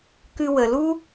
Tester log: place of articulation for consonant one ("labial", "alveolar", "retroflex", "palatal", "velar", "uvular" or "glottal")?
velar